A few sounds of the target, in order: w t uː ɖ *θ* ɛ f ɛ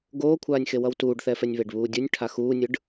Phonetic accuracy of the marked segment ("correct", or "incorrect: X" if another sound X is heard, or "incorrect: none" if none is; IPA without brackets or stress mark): correct